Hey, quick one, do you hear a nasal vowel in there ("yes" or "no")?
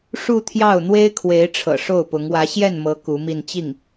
no